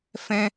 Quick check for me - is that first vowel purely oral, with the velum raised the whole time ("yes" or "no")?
no